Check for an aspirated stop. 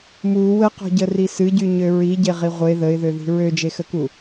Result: absent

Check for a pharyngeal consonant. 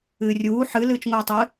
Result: present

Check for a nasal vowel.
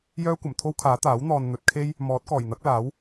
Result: absent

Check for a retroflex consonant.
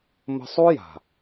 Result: absent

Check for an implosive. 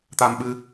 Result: present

